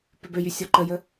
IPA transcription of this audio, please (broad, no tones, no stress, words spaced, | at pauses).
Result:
pʏbøjy sʲɔǃəjə